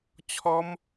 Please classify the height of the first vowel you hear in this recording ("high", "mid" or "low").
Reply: mid